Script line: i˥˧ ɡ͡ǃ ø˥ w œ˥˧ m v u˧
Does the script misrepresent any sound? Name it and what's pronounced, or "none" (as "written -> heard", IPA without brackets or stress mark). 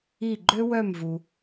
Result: none